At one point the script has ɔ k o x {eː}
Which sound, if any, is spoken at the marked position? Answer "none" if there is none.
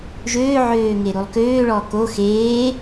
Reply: eː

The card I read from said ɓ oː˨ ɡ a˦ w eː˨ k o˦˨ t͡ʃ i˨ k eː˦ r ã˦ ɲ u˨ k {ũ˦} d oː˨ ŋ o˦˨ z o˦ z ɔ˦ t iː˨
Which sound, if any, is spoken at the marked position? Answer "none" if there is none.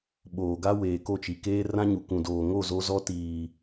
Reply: ũ˨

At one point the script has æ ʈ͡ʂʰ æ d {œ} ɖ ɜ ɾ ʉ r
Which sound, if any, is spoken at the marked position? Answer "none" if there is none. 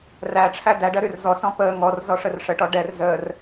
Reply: æ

